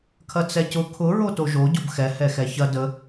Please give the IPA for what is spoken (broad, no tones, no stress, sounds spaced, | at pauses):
kʰ ɐ t͡s ɛ c ʊ kʰ ʊ ɹ o t o ʒ o ɟ o b x ɛ h ɛ x ɛ ç ɐ d ə